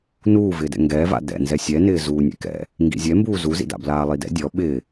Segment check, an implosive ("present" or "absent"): present